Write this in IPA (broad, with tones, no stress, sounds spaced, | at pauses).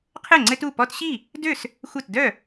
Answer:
qʰ ɘ˥˩ ŋ͡ǀ ɘ˦ t u˥˩ p ɔ˦ t ɕ i˥˩ | d ø˥˩ s | xʷ ɘ˥˩ t d œ˥˩